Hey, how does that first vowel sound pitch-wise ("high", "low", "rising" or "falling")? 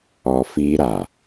low